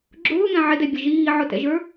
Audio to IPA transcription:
ɡ͡ǁ ʊː ŋ ɛ̃ ʕ ɪ d ɛ bʲ ə ʒ iː ʕ ʊ t ɛ̰ ʒ ə˞

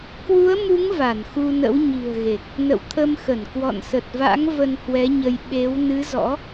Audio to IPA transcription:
k w u˨˦ ə̯ m u˨˦ ŋ v a˧˩ n x u˧ n ə̰˧˥ w ɲ i̤˨˩ ə̯ ɣ e˨˩ k̚ | n ə̰˧˨ w t̪ʰ ə˧ m x ə˧˩ n k w ɔ̰˧˨ n s ə˨˩ t̚ v a̰˧˥ ŋ v ə˧ n h w ɛ˨˦ ɲ ə˧ j ɓ e˨˦ w n ɨ˨˦ z ɔ̰˧˥

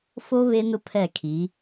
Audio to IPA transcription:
f o˦ β e˦ n ʊ˦ pʰ ɛ˦˨ kʰ i˨˦

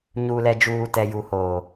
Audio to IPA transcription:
ɲ uː˨ l ɛ˨ d͡ʒ uː˨ t ɛ˨ j u˨ h oː˨

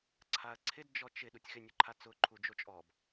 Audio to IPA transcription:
ǀʰ a ɐ̯ ǀʰ ɪ d d͡ʒ ɔ t͡ʃ ɪ ɗ u tʲ x ɪ nʲ ʊ ǃʰ a t͡s ʊ ǃʰ u d͡ʒ o t͡ʃʼ ɔ b

